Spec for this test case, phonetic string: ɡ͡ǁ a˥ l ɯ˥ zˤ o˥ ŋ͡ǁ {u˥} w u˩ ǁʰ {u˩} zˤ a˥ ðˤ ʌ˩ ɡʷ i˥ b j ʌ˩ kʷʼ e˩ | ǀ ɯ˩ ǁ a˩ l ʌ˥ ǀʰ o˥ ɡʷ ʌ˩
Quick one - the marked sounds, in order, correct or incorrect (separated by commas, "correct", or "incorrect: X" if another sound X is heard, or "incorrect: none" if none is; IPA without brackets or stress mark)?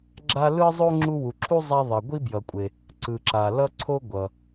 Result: correct, incorrect: u˥